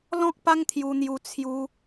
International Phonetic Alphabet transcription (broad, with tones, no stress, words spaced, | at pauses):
lɔ̃˦k̚pa˦ŋt̪ʰju˧n̪ju˧ t͡sʰju˦